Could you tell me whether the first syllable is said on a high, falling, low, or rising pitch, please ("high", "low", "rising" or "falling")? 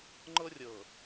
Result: high